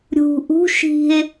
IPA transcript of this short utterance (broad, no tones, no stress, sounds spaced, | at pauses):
ɾʲ ṳ ʔ ṳ ʃ i̤ e̯